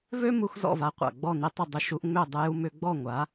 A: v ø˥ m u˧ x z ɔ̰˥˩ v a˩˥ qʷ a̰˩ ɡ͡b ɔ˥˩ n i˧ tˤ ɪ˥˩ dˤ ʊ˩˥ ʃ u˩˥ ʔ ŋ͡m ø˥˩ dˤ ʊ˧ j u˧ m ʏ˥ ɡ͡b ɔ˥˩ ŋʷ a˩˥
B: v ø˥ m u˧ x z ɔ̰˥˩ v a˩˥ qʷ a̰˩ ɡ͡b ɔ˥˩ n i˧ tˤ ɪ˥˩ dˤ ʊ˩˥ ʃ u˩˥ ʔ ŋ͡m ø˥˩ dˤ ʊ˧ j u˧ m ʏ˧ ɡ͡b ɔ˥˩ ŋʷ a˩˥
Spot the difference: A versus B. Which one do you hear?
B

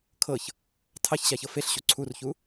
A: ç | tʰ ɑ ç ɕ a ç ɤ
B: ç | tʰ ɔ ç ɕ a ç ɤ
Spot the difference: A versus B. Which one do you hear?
A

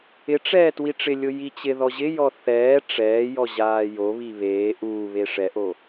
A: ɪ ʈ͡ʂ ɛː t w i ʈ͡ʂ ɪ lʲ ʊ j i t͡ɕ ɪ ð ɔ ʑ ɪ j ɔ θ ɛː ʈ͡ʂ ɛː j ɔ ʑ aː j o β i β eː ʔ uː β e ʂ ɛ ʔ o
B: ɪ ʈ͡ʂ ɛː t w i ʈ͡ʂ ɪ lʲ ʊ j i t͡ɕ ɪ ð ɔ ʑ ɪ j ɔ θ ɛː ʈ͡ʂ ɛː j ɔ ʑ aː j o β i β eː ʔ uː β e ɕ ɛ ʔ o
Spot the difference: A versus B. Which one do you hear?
A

